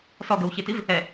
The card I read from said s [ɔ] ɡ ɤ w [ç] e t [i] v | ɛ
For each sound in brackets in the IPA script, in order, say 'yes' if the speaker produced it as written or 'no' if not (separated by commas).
yes, yes, yes